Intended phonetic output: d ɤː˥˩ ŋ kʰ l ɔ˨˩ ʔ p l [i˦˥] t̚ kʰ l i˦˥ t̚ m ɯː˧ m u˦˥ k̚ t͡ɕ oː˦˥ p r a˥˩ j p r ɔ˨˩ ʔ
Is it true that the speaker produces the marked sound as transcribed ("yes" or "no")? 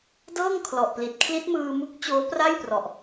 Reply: no